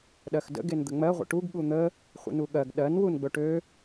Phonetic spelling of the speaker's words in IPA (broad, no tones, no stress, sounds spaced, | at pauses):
ɗ ɜ x d ə̰ ɡ e n d̪ ə ŋ͡m ɜ ʁʷ ə̰ ʈ u ɡ ɠ u n̪ ə | χʷ ə̰ n u ɠ ɜ ɡ ɗ ɜ n w u n ɡ͡b ɵ ʈ ø